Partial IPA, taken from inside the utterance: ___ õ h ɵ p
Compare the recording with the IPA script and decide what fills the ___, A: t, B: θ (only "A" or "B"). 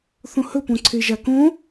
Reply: B